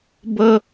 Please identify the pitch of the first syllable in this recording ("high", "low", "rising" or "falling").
high